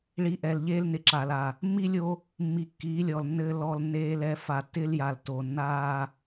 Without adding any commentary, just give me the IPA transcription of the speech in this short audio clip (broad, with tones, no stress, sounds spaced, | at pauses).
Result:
ɭ i˨ ʔ ɛ˨ l ʎ eː˦ l n ɪ˨ ǁ aː˨ l a˨ | mː i˦ lʲ o˦ | mː i˨ kː iː˨˦ lʲ ɔ˨ l nː ɘː˦ l ɔ˦ l nː eː˦ l ɛ˦ f a˨ tː ɪ˦ l j a˨ l t o˨ nː aː˦